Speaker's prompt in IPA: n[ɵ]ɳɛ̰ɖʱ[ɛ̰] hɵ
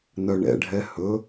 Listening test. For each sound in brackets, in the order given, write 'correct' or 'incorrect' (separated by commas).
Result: incorrect, incorrect